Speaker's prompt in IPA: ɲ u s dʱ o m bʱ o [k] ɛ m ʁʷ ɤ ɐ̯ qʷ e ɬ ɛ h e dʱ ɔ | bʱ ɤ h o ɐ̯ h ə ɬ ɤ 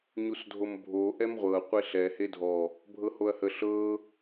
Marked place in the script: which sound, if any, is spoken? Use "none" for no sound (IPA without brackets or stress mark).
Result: ʔ